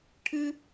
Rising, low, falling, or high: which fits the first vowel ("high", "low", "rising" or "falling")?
high